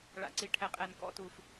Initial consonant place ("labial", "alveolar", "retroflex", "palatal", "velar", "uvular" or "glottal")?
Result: retroflex